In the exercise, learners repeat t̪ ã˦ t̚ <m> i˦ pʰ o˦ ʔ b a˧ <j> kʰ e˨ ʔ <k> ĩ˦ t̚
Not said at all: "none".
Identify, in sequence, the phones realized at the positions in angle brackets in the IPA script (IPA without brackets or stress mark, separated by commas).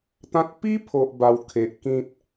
p, w, k